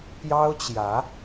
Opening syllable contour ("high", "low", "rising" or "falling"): high